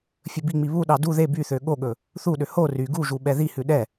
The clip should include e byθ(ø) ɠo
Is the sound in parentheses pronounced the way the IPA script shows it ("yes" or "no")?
yes